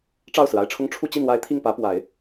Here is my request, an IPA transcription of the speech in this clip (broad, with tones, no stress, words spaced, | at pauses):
ʈ͡ʂɑ˥˩ʊ̯sɹ̩˩a˥˩ɪ̯ʈ͡ʂʰʊ˥ŋ ʈ͡ʂʰu˥˧t͡ɕi˥˩nwa˧˥ɪ̯ t̪ʰi˥˩ŋpä˧˥pwa˨˩˦ɪ̯